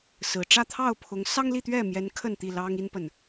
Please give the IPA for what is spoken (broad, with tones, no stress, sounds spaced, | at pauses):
s ɹ̩˨˩ ʈ͡ʂ ä˥˨ t̪ʰ ɑ˥˨ ʊ̯ pʰ ʊ˨˦ ŋ s ɑ˦ ŋ l i˥˨ t̪ ɥ ɛ˥˨ m j ɛ˨˦ n kʰ ə˥˨ n t̪ i˥˨ l ɑ˦ ŋ i˦ n p ə˨ n